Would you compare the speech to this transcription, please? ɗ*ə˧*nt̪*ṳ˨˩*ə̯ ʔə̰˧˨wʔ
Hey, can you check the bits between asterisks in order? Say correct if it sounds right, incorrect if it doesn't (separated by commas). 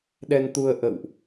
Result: incorrect, incorrect